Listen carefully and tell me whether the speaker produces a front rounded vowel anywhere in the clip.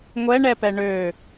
yes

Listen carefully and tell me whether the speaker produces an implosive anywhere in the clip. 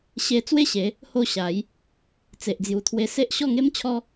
no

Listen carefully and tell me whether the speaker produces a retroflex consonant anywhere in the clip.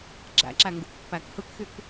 no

